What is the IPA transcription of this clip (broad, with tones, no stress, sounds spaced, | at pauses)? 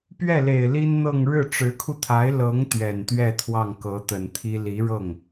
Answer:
p ɥ ɛ˥˩ l e˨˩ ɪ̯ l i˥ n n̪ ɤ˥˧ ŋ ɻ ɻ̩˥˩ ʈ͡ʂ ɻ̩˧˥ kʰ u˧ t̪ʰ a˧˥ ɪ̯ l ɤ˧˥ ŋ t̪ ɥ ɛ˨˩ n t̪ ɥ ɛ˥˧ t̪ʰ w ɑ˥˩ ŋ k ɤ˧˥ t̪ ə˨˩ n t̪ʰ i˥ l i˧˥ ɻ ɤ˥˩ ŋ